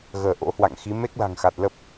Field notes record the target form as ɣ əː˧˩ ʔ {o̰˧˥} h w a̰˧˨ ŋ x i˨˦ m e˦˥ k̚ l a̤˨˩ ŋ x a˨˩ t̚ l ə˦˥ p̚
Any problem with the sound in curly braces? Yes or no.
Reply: no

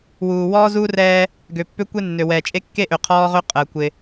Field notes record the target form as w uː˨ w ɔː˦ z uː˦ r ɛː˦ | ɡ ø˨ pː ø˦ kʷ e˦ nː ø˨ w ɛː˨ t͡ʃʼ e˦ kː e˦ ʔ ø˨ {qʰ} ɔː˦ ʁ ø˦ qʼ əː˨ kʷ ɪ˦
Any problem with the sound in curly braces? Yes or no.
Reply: no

